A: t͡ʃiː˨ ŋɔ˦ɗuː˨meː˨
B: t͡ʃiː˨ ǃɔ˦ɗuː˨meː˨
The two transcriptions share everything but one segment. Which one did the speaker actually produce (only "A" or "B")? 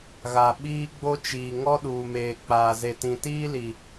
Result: A